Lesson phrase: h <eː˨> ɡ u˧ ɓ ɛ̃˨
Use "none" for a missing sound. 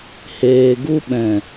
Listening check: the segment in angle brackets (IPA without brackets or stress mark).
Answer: eː˨